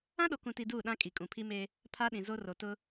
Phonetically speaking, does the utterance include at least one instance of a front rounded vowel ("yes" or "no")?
no